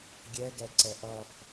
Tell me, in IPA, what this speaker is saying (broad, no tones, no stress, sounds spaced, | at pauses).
ɡʲ ɛ ɡ ɛ ǀ ɛ ʔ ʌ f